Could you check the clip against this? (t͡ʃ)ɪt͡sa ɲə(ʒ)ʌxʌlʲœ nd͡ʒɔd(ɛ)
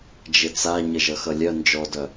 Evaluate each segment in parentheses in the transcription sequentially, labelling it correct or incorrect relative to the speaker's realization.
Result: incorrect: d͡ʒ, correct, incorrect: œ

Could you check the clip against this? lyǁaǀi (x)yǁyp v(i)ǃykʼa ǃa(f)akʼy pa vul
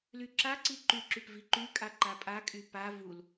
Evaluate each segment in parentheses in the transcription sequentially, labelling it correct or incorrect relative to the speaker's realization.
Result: incorrect: ǃ, correct, incorrect: pʼ

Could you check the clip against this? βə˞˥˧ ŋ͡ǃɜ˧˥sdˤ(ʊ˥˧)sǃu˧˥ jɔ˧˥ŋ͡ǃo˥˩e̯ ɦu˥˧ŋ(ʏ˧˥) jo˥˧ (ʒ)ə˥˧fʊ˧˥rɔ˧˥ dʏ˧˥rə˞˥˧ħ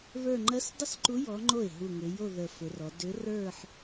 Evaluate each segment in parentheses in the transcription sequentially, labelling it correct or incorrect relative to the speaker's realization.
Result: correct, correct, incorrect: ð

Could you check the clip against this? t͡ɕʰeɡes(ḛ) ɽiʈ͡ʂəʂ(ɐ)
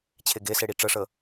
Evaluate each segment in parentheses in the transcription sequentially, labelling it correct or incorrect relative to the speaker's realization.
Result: incorrect: e, incorrect: ə

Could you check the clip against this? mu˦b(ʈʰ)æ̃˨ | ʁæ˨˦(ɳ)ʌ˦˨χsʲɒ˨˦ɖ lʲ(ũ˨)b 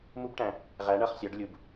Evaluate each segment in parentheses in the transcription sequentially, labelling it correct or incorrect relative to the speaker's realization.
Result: incorrect: ʈ, correct, incorrect: u˨

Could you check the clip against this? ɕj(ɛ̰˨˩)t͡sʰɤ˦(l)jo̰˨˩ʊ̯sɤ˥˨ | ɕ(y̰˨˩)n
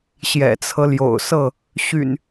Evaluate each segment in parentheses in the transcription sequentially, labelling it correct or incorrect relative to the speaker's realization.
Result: correct, correct, correct

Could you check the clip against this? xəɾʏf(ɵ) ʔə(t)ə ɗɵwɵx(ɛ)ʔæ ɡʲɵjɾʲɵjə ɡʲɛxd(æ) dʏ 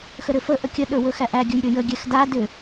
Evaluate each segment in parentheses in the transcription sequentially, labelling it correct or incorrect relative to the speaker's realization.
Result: incorrect: ə, incorrect: kʲ, incorrect: æ, incorrect: a

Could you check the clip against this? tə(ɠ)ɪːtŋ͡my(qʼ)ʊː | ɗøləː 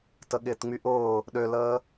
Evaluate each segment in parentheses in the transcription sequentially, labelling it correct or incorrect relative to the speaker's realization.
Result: correct, incorrect: ʔ

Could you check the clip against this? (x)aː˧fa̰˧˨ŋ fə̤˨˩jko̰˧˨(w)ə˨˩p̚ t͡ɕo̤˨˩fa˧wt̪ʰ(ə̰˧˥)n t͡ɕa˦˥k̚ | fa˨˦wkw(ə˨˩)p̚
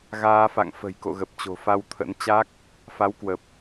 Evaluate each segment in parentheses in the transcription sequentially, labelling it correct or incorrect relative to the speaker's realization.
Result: incorrect: ɣ, incorrect: ɣ, correct, correct

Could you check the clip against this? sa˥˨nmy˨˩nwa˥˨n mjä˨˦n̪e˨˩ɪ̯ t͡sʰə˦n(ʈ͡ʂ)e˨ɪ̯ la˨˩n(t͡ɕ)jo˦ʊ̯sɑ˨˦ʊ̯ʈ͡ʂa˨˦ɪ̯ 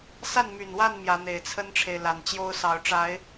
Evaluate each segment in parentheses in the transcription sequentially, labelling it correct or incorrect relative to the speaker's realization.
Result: incorrect: ʈ͡ʂʰ, correct

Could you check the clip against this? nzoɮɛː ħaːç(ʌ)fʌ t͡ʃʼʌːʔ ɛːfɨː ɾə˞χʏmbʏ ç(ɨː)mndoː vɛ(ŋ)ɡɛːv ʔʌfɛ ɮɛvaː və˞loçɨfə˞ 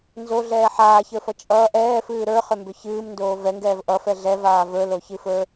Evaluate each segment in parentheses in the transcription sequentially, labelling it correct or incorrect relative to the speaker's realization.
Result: incorrect: ə˞, correct, correct

